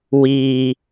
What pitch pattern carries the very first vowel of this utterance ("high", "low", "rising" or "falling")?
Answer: low